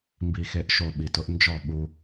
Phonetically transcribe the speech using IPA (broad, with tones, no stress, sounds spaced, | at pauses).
m b i˨ x e˨ ʔ ʃ o˨ ɓ i˨ t ʊ˦ ʔ n d͡ʒ ɔ˦˨ ɓ u˦